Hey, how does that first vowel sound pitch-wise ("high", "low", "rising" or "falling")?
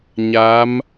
rising